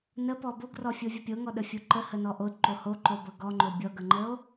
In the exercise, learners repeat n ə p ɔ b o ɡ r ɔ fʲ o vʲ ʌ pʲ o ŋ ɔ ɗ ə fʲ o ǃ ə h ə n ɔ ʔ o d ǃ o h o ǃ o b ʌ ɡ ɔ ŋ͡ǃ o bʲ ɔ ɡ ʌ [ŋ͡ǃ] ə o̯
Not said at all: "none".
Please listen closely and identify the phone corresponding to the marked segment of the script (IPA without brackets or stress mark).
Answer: ŋ͡ǃ